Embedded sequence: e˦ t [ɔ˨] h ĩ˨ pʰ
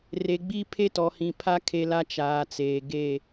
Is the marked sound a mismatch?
no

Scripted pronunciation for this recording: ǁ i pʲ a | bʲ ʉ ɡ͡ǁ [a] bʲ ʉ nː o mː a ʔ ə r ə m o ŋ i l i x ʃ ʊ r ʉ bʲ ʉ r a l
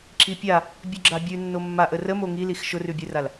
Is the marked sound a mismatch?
no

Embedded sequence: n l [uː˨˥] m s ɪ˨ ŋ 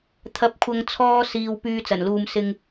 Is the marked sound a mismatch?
yes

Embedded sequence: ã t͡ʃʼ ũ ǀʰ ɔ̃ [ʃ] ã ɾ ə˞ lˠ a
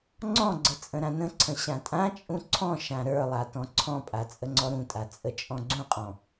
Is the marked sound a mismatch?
no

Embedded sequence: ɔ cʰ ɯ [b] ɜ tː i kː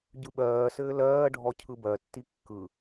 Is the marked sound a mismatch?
no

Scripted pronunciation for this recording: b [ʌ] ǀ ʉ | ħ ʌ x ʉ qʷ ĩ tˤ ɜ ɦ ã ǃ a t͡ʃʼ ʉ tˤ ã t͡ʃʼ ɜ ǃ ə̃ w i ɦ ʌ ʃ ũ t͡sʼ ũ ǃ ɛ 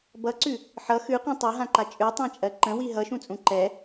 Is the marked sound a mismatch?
no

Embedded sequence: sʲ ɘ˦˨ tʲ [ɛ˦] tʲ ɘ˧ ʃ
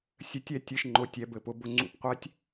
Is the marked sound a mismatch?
no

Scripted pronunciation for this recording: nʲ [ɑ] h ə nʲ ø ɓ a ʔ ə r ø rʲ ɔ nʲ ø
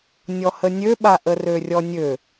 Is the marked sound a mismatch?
yes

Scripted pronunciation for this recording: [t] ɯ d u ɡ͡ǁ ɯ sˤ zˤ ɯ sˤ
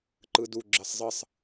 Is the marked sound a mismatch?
yes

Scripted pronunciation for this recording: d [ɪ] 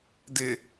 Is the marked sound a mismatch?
no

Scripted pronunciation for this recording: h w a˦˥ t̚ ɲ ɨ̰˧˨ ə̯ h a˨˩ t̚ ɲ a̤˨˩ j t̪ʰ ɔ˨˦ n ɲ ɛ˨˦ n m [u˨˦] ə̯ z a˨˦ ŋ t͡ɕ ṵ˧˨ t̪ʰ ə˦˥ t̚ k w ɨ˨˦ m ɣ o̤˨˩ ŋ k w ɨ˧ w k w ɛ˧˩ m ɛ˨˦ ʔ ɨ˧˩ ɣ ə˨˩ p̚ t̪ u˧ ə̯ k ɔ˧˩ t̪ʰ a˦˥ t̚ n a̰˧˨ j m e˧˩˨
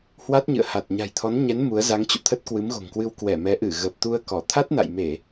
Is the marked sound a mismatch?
no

